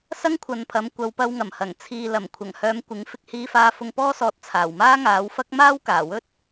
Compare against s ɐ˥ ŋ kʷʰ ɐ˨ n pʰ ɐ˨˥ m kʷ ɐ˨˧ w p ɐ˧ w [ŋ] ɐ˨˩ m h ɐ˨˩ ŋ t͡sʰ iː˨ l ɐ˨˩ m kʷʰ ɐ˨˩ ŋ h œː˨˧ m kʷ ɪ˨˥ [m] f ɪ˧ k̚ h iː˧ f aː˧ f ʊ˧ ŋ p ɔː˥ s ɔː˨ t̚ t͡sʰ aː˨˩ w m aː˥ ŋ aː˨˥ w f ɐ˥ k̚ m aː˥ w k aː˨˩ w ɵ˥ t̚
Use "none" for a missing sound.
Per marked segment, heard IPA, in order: ŋ, ŋ

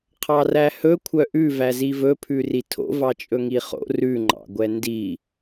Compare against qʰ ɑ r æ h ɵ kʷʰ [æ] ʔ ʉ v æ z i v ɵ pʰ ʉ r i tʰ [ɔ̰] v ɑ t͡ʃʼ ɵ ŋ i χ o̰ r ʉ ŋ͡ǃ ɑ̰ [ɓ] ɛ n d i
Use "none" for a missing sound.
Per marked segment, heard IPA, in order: œ, o̰, ɡʷ

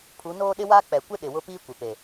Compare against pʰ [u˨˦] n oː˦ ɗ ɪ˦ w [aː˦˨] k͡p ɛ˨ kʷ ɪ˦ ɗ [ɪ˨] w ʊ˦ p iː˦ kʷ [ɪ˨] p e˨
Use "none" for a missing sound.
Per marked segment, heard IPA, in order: u˨˦, aː˦, ɪ˨, ɪ˨

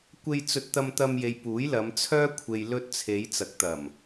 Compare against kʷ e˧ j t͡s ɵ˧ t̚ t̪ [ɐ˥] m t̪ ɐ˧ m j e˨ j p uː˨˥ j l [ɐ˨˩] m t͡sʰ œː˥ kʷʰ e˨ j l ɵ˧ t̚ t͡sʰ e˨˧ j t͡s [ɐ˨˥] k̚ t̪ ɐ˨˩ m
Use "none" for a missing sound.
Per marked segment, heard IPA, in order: ɐ˧, ɐ˨˧, ɐ˨˥

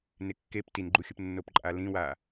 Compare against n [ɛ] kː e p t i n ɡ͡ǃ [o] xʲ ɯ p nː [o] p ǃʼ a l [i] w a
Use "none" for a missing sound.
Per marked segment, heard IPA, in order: e, u, o, ĩ

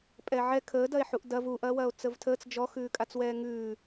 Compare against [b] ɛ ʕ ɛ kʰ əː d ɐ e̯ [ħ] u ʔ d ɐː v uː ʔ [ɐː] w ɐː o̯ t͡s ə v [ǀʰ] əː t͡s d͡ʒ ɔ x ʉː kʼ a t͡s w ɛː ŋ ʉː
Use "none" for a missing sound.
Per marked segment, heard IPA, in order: pʼ, ħ, ɐː, tʰ

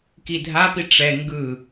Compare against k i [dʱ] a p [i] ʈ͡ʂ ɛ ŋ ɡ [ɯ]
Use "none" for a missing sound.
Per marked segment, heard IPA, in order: dʱ, i, ɯ

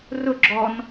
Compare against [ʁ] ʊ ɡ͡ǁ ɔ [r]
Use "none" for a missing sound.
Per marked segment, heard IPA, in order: r, n

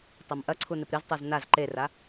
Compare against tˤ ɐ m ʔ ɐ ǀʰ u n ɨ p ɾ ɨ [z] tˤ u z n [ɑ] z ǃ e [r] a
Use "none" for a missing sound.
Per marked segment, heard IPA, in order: z, a, r

